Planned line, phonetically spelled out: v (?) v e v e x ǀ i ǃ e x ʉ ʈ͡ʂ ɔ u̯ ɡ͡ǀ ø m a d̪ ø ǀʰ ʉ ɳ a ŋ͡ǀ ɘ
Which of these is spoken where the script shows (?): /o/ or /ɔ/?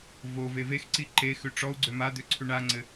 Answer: o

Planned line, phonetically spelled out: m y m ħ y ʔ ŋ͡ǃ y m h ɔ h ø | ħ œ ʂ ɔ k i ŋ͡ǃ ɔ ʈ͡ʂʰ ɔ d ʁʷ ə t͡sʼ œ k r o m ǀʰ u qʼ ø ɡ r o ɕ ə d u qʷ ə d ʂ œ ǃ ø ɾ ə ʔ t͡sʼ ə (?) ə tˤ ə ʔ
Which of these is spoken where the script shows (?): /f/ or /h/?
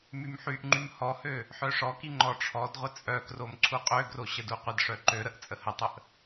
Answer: h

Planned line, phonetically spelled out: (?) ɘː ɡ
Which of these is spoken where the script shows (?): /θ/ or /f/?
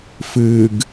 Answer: f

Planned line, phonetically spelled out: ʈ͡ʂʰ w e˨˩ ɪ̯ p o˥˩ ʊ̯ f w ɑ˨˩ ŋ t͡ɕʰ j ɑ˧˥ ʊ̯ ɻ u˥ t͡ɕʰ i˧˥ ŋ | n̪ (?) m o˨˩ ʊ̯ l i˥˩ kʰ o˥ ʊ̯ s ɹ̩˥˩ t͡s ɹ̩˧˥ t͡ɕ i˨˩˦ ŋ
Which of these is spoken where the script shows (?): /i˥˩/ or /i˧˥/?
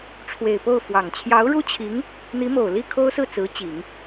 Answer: i˧˥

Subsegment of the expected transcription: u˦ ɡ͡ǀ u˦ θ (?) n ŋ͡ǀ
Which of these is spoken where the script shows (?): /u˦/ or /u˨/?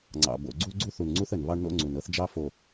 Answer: u˨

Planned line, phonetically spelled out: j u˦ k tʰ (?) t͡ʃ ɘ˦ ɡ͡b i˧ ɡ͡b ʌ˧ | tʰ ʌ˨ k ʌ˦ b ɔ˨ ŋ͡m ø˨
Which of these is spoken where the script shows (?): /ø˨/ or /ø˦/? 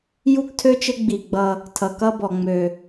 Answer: ø˦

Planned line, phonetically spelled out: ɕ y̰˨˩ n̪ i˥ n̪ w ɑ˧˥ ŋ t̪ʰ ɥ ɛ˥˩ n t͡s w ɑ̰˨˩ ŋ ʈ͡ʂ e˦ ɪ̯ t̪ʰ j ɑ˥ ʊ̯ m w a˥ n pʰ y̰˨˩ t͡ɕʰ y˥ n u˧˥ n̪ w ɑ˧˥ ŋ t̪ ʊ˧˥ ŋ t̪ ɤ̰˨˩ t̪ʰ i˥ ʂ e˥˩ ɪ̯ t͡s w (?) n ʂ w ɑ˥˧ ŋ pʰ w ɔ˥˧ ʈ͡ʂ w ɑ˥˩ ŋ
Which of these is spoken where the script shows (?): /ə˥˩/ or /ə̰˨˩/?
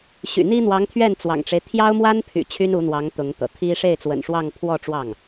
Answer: ə̰˨˩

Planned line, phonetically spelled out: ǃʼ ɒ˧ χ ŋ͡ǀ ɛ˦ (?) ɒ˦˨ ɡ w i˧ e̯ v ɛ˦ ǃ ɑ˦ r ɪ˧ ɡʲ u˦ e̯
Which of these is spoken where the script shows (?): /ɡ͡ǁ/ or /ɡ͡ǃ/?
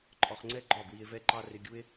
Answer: ɡ͡ǃ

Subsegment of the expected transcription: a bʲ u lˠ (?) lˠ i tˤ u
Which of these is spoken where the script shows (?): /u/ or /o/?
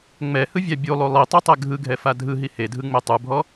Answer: u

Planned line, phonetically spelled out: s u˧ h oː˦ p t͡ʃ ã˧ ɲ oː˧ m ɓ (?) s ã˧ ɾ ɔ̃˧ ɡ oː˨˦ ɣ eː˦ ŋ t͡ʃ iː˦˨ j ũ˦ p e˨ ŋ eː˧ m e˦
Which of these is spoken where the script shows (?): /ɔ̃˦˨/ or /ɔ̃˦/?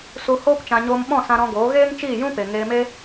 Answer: ɔ̃˦˨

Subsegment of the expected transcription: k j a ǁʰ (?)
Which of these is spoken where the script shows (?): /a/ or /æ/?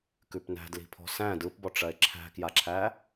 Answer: æ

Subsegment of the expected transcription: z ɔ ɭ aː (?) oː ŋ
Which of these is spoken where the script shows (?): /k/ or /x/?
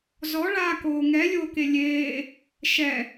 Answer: k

